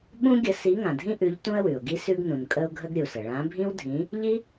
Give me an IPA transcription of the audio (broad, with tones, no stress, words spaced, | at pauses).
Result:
ɓũ˥ɡʲə˨˥ si˨˥ ŋã˩dʱĩ˥ʔʉ˨˥ʎ tũ˥ə̯wʉ˩ʊ̯ɡi˥ sʉ˥ɡnũ˩nkʼə˥ʊ̯ ɡʱə˥ɡɾʲu˩sə˩ ɭã˨˥bʱĩ˥wdʱĩ˨˥ | ʎi˥